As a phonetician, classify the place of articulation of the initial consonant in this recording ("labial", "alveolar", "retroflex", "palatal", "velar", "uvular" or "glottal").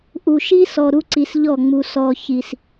glottal